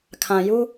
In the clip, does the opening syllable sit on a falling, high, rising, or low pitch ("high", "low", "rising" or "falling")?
low